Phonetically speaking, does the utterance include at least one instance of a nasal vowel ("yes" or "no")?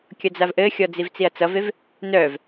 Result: no